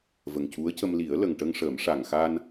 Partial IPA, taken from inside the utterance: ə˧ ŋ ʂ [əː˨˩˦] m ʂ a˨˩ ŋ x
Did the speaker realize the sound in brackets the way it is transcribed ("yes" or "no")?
yes